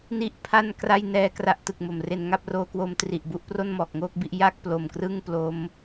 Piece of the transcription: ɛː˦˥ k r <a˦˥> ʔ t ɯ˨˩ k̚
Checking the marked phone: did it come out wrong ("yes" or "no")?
no